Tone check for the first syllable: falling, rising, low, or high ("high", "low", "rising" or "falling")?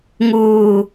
low